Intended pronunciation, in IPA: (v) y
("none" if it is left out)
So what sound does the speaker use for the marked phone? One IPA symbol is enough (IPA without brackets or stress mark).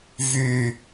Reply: v